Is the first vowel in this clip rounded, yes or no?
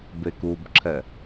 no